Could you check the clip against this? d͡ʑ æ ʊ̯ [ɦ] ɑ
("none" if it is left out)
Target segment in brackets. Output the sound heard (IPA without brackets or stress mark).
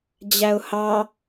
h